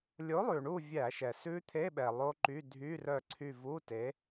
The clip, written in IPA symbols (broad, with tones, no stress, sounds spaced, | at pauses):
lʲ o˨˥ lˠ ʉ˩ ɳ u˦˨ vʲ æ˧˩˧ ʃ ɛ˩ s ʉ˦˥ t̪ʰ e˧˥˧ ɓ ɛ˩ lˠ o˦˥ ǃ y˧˥˧ dʱ y˧˥˧ r œ˦˨ ǀʰ y˦˨ v u˧˥˧ t e˨˥